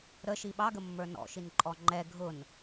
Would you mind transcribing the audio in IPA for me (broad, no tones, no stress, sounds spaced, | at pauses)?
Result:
ɾ ə ʃ i ɓ ɑ ɡ ə mː ə˞ n ɔ̰ ʃ i n ǃʼ ɔ ŋ͡ǃ ɛ ɡʱ ʊ n